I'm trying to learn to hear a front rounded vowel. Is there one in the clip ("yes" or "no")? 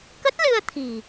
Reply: no